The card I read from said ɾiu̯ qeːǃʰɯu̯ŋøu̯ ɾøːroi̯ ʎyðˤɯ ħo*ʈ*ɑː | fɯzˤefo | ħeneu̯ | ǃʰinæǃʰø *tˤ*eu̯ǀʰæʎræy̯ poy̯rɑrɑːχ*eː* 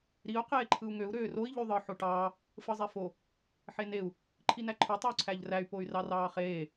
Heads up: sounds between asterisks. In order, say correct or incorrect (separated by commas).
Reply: correct, correct, correct